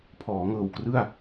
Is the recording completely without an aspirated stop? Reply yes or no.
no